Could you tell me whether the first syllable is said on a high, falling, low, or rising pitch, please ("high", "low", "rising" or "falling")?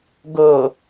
low